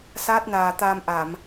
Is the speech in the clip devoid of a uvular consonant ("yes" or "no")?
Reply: yes